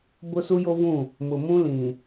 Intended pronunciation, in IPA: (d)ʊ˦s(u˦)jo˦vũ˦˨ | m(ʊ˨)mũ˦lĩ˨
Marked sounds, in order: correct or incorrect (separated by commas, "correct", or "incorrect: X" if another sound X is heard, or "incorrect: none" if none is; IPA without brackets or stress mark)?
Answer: incorrect: b, correct, correct